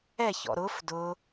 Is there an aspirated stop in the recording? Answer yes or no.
no